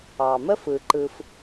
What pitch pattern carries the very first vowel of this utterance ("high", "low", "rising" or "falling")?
low